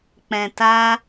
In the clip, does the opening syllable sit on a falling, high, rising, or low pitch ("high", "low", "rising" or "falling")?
low